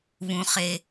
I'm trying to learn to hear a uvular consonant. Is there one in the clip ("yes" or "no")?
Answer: yes